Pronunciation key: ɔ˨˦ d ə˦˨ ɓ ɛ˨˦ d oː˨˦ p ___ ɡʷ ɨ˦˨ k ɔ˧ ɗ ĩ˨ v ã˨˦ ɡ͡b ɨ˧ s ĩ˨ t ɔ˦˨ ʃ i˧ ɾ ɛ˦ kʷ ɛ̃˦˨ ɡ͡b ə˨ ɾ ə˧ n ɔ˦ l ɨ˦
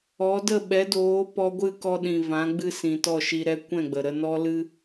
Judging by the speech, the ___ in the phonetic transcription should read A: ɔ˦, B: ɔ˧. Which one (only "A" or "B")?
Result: B